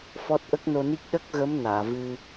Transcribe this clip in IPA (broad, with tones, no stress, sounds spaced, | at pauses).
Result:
f ɔ˦˥ t̚ ʔ ə˦˥ k̚ n o˧ n i˦˥ k̚ ɗ ə˦˥ k̚ ɣ ə˧˥ m n aː˨˩˨ v ɨ˧